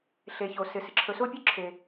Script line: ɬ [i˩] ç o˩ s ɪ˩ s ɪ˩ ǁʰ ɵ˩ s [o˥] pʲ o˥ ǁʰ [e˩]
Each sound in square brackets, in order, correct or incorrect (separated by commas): incorrect, correct, correct